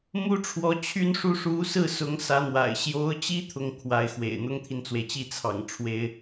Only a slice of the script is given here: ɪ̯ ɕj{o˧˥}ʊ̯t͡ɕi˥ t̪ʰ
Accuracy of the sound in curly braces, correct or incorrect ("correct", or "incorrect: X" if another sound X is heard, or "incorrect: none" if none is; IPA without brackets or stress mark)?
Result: correct